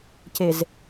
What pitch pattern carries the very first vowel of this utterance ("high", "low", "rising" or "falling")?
low